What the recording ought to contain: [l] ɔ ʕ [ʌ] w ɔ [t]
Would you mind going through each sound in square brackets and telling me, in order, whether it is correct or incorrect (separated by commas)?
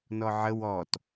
incorrect, incorrect, correct